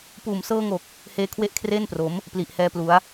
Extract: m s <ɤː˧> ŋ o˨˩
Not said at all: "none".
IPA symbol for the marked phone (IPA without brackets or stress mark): ɤː˧